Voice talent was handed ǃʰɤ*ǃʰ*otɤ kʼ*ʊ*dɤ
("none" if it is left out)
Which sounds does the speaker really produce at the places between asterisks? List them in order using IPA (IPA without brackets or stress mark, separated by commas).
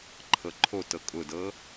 ǃʰ, ʊ